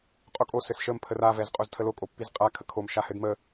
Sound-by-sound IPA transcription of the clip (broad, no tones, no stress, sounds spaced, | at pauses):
qʼ o kʼ o s ɘ s ʃ ə m pʰ ə r a v ɛ z qʼ o z tʰ ə l o kʼ o pː i z qʼ a kʰ ə kʰ o m ʃ a h ɘ d m ə